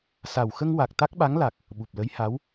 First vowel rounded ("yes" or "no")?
no